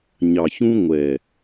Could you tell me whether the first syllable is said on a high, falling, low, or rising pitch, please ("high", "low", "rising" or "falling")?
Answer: low